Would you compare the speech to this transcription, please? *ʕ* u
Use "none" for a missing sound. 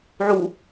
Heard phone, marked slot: ʕ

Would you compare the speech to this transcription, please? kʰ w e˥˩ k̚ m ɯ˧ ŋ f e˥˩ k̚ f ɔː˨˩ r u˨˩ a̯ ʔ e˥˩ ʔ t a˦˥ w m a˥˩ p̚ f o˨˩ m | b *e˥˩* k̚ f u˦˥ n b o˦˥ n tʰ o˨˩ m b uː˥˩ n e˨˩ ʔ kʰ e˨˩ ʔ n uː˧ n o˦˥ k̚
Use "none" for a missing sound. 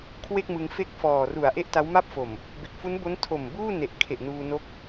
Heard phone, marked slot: e˨˩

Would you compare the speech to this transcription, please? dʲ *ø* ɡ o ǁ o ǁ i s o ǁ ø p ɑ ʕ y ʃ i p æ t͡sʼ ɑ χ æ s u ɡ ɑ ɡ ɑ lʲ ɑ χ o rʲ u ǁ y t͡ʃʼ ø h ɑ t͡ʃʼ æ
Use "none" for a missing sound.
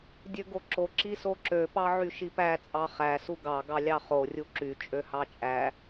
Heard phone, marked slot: ø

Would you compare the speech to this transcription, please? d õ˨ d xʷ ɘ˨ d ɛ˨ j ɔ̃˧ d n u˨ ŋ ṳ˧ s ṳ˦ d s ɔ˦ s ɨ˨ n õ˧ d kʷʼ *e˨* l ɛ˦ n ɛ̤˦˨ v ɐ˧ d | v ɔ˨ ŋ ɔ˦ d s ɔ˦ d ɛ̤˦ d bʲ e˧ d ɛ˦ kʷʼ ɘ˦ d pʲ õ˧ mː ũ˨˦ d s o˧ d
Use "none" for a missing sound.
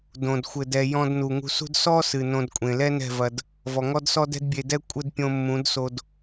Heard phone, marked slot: ẽ˨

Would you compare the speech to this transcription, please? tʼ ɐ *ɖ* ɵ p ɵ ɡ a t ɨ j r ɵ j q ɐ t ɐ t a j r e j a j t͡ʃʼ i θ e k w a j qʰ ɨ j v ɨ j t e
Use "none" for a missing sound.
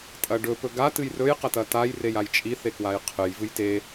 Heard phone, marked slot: ɖ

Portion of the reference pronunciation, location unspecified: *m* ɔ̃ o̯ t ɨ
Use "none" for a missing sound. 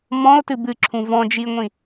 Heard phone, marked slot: m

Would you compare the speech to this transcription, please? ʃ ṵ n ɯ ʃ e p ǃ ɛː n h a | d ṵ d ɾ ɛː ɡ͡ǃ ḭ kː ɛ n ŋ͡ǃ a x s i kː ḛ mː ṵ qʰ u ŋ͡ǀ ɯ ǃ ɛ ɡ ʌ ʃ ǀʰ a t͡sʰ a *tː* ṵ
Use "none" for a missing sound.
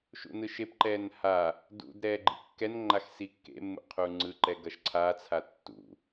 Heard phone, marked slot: tː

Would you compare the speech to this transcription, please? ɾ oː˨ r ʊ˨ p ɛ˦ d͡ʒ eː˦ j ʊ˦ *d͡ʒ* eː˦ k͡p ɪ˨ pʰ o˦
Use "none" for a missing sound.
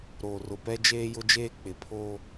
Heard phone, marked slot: d͡ʒ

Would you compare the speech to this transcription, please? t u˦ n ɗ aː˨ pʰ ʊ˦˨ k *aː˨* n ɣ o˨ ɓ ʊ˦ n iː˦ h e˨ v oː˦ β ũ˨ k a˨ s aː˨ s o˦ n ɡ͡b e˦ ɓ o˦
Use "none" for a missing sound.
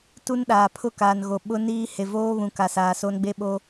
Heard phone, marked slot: aː˨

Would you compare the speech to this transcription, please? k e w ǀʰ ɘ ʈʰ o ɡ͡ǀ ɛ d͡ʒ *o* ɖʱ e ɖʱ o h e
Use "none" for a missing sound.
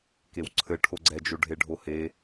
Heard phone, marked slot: o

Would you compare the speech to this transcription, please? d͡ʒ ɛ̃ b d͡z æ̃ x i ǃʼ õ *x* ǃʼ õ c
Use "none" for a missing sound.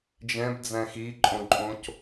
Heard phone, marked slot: none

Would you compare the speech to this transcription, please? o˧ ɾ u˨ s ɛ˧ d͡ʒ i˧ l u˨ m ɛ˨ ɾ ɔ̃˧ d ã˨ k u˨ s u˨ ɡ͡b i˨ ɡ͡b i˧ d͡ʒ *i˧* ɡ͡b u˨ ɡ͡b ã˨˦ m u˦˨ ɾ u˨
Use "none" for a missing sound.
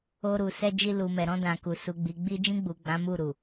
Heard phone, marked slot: ĩ˧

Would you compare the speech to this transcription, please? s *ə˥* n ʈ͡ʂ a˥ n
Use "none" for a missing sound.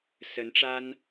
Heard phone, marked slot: ə˧˥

